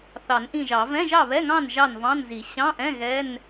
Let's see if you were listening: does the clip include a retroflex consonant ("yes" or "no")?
no